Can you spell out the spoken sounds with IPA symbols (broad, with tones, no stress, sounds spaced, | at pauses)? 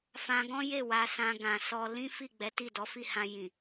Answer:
f ã˧ ɡ ɔ̃˦ j e˦˨ w a˧ s ã˧ ɡ ã˨ s ɔ˧ l ĩ˦ f i˦˨ ɡ͡b ɛ˨˦ t i˦˨ d ɔ˨˦ f i˦˨ h ã˧ j ĩ˨